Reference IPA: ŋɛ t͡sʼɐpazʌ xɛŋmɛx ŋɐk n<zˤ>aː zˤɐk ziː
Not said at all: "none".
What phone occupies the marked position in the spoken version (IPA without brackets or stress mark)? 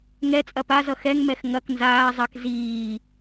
z